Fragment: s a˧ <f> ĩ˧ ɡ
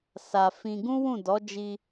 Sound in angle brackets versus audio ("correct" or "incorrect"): correct